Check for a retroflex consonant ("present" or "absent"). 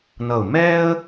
absent